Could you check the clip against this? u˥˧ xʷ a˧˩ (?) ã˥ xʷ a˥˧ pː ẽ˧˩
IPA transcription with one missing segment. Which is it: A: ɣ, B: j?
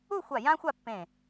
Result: B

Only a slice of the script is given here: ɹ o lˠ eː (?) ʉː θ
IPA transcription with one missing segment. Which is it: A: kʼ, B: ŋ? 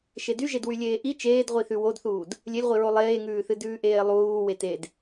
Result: B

